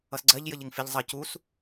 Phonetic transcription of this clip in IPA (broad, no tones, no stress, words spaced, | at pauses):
ʌsɡ͡ǀɜʎ jəʎɪŋfɪʎ zˤʌ cus